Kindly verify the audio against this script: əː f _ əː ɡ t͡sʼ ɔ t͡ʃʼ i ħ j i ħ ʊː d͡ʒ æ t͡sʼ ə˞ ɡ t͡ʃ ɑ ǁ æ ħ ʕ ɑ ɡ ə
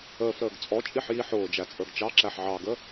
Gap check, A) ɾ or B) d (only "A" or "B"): A